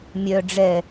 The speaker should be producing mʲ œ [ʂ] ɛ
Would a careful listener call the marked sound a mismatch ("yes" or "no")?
yes